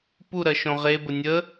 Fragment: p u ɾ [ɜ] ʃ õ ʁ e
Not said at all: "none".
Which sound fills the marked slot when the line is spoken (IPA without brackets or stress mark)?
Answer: ɜ